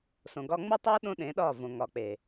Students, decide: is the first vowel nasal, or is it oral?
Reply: nasal